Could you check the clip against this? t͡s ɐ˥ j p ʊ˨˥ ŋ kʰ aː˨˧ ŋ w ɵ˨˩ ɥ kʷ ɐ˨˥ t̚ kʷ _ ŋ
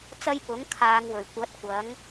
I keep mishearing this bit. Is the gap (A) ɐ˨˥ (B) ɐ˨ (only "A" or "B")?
A